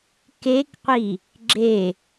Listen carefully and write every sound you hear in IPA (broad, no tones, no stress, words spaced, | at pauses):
kekqʷi | ɡ͡ǁe